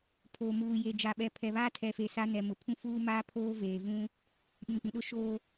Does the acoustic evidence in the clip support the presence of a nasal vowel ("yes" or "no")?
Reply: yes